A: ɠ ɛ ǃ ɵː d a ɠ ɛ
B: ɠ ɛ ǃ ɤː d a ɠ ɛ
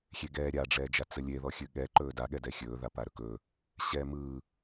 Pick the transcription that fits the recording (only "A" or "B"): A